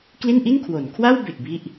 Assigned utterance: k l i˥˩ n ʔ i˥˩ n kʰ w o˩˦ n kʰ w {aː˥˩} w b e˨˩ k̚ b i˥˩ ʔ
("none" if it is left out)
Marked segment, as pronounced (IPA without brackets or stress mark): a˥˩